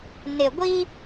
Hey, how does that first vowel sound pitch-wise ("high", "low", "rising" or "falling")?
low